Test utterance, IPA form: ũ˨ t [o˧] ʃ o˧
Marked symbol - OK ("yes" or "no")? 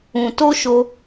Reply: yes